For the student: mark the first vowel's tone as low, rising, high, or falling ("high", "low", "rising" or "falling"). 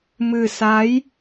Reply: low